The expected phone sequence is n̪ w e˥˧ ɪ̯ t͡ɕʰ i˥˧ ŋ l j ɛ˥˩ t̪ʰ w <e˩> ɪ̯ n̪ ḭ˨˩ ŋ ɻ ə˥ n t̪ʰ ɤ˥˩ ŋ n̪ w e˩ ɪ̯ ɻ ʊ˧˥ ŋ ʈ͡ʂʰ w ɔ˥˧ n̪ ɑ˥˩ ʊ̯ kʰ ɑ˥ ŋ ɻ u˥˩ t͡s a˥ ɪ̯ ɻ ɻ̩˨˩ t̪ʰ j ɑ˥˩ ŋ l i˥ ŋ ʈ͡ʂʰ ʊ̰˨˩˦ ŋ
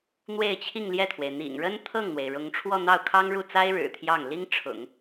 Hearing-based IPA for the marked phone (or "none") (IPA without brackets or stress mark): e˩